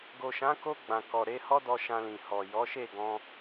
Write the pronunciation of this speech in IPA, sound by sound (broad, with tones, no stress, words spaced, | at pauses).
ɡo˨ʃã˨˦ko˧ ɡ͡bã˨kɔ˨ ɾe˨˦hɔ˦dɔ˧ ʃã˧lĩ˨ hɔ˨ jɔ˨˦ʃe˦˨ ɡɔ̃˧